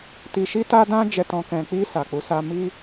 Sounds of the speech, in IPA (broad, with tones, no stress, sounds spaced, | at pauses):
t i˨ ʃ i˧ t a˧ d ã˧ d͡ʒ ɛ˨ t ɔ̃˨ k ɛ̃˨ k͡p i˧ s a˨ k͡p u˨˦ s a˧ m i˧